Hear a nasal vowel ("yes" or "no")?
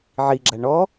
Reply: no